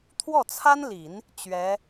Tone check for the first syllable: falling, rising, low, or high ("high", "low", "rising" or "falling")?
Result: falling